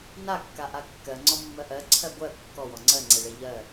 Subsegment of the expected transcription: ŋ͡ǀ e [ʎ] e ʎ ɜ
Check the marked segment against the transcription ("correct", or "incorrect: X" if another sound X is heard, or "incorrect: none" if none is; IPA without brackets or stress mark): incorrect: ɭ